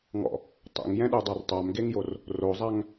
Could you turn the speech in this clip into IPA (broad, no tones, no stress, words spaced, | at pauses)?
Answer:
ŋɔ̰ | tˤḛŋjɛ̃ɗudˤar tˤamɡeŋjor | rozˤaŋ